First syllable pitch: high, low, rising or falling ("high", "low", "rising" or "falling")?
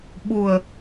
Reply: low